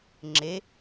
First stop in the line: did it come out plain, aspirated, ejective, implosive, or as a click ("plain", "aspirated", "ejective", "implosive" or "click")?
click